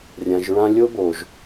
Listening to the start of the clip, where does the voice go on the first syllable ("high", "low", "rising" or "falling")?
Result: low